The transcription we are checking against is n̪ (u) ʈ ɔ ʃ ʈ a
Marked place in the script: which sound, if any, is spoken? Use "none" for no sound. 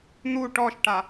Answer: u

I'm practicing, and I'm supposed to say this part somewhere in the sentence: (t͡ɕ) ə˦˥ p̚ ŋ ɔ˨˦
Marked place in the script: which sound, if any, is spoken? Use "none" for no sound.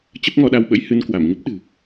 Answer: t͡ɕ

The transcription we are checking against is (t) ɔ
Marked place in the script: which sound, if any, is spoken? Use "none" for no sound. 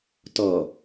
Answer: t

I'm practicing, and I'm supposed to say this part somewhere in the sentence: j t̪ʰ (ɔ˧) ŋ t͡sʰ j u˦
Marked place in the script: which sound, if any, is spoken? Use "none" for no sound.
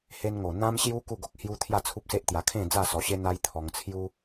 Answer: ɔ˧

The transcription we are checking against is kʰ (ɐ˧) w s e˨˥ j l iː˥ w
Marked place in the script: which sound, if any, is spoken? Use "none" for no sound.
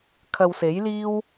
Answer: ɐ˧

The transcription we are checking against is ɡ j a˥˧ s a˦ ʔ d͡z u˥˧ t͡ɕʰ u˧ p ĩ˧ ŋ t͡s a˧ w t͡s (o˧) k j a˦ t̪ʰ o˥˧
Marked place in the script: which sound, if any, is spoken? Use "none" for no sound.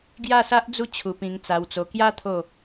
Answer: o˧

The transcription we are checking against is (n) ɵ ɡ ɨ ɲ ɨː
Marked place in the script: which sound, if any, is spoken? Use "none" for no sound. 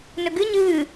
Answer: n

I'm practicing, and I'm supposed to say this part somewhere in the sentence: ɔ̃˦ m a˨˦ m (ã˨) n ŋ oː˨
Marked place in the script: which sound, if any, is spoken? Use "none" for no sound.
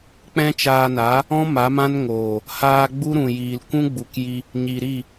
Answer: ã˦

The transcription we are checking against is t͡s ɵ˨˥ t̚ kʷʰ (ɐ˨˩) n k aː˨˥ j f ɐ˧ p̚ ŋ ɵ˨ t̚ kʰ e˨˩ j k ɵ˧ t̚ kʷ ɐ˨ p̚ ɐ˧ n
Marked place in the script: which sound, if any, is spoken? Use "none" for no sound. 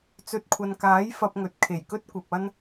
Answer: ɐ˨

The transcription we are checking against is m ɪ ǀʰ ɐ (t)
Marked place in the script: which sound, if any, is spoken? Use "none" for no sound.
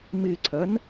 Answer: n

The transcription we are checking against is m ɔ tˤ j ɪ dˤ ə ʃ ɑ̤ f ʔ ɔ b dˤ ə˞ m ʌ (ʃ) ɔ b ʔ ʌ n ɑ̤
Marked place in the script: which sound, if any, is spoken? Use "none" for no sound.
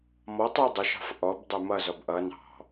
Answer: z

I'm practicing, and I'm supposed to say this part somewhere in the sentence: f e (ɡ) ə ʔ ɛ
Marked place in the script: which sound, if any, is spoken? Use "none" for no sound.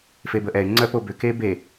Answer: b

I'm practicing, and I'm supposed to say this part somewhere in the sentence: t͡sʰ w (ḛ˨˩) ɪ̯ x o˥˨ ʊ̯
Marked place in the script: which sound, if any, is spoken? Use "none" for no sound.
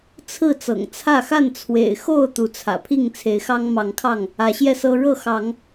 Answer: ḛ˨˩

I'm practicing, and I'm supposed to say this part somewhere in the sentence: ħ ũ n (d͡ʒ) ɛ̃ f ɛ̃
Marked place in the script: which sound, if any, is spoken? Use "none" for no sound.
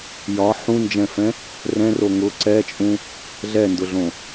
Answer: d͡ʒ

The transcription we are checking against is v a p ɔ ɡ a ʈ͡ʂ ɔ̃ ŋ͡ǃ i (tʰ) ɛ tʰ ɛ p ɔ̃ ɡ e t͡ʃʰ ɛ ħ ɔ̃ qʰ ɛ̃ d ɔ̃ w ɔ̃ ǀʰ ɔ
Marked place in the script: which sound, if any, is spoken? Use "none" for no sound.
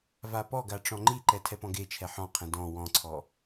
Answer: ǃ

